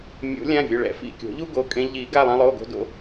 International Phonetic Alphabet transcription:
mʲ o̰˨˩˦ lʲ ã˩˧˩ vʲ ʊ˩˧˩ ɭ ɛ̰˨˩˦ f ḭ˩˧˩ kʲ o̤˨˩˦ ʎ u˦ ɡ o˩˧˩ kʼ ẽ˦ ʎ i˨˩˦ ɡ a˩˧˩ lˠ ã˦ lˠ o˩˧˩ ɡ o̤˦ d o̰˩˧˩

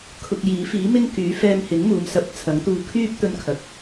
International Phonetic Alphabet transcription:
kʰ ʊ˧ k̚ j iː˨˥ f iː˨˥ m ɪ˥ ŋ k yː˨˥ f ɛː˧ m h ɪ˨˥ ŋ m uː˨˧ m s ɐ˨˥ p̚ t͡sʰ ɐ˨˥ ŋ t̪ uː˧ kʰ yː˥ p̚ t̪ ɵ˧ n kʰ ɐ˨˥ k̚

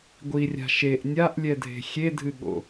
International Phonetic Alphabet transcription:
ɡʷ i rʲ a̤ ʃ e ʔ nʲ a ʔ lʲ ɛ dʱ e̤ xʲ e dʱ ɨ ɠ o̰

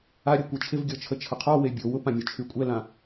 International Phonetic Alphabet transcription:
a ɾʲ ø kʷ e t͡ʃʰ ɪ v ɡʲ ɔ t͡ʃʰ ə t͡ʃʰ ə qʰ ɔ w e bʲ o w ʊ p ã mʲ ʊ t͡ʃʰ y kʷʼ ɛ l ã

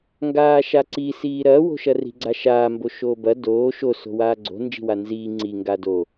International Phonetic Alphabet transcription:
ŋ ɡ aː ʃ a ǀ i s iː ɾ ɐː w o̤ ʃ ɐ r i̤ ɡ͡ǀ a ʃ aː m b o ʃ oː b ɐ d oː ʃ o s o̤ w aː ɡ͡ǀ o̤ n d͡ʒ i̤ w a n z iː ŋ͡ǀ i ŋ ɡ aː d o

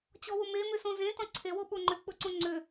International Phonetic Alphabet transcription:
t͡ɕ ɔ w ʊ m e m ʏ s õ z ẽ t ɔ̃ ǀʰ e w o ɓ o ŋ͡ǃ ʏ k͡p ʊ ǀ õ ŋ͡ǀ ʏ

